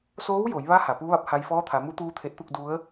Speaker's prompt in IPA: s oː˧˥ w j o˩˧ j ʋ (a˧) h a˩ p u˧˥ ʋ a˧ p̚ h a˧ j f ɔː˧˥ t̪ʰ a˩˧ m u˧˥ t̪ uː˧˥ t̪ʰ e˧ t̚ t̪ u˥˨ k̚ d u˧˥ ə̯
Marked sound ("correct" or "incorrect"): incorrect